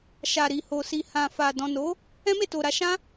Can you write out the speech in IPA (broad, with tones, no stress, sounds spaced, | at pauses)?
ʃ a˨ ɾ i˨ h o˨ s i˨ h ã˨ f a˨ d ɔ̃˨ n o˨˦ | ɛ̃˦ m e˦˨ t o˨ ɾ a˧ ʃ ã˦